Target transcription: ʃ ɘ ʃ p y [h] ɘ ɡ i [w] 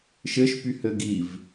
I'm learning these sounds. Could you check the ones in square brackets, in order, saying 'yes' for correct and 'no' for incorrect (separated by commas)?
yes, no